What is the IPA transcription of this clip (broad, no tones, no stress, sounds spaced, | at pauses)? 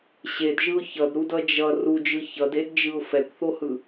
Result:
ɕ e d ʒ ɯ ʊ̯ ç ʌ d ɾ u d ʌ d͡ʒ ʌ r u d͡ʒ ɯ ç ʌ d e d d͡ʒ ɯ ʊ̯ f ɛ kʷ θ o h ɯ